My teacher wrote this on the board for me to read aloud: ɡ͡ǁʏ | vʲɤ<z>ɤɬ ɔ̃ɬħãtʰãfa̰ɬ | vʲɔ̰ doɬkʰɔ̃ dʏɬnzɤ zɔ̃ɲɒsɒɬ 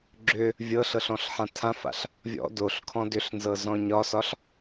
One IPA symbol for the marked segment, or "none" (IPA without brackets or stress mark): ɬ